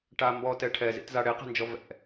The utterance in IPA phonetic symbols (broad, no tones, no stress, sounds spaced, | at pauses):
ʈ a m b ɔ t ɛ ʈʰ ɛ z ḭ t z a ɽ e q ɛ̤ n d͡ʒ ɔ v ɛ̰